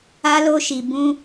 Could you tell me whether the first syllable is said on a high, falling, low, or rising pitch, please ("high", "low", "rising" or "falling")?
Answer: high